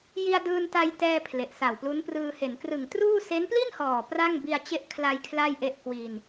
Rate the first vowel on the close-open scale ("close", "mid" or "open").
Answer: close